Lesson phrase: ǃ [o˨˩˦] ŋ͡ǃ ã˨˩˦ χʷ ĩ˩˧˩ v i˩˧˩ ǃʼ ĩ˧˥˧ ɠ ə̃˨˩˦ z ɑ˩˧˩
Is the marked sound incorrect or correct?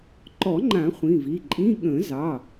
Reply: incorrect